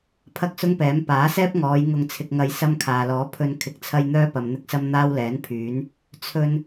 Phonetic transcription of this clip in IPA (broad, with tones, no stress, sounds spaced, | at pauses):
pʰ ɐ˥ k̚ s ʊ˥ ŋ p ɛː˨˥ m p aː˨˥ s ɛː˥ p̚ ŋ ɔː˨˧ j ŋ ʊ˧ ŋ t͡sʰ ɪ˧ k̚ ŋ ɐ˧ j s ɐ˥ m kʰ aː˨ l ɔː˨˥ pʰ ɵ˧ n kʰ ɪ˧ k̚ t͡sʰ ɐ˥ j n̪ œː˥ p ɐ˨ m n̪ ɪ˥ k̚ s ɐ˥ m n̪ aː˥ w l ɛː˨˥ n pʰ yː˨˥ n | t͡sʰ ɵ˧ n